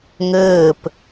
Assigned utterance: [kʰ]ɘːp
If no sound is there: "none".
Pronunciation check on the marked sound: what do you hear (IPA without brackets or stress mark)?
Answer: ŋ